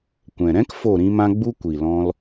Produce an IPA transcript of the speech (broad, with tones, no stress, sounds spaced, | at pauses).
kʷ ɛ̃˨ ɾ ɛ̃˦ k f o˦˨ ɾ ĩ˦ m ã˦ ɡ͡b u˦ kʷ i˨ l ɔ̃˧ l